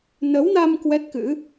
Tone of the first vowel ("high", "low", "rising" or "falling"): rising